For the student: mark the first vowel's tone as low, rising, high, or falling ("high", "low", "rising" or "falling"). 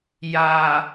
low